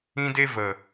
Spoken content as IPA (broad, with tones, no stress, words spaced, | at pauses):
ĩ˦de˦ və˨